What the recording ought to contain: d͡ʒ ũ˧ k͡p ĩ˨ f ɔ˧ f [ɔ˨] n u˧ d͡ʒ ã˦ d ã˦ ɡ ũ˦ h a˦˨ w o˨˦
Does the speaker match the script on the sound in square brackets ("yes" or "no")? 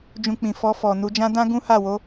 yes